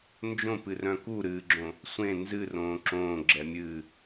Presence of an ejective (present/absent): absent